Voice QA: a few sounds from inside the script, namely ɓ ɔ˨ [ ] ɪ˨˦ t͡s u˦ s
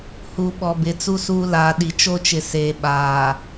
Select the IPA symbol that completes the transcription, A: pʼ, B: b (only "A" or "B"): B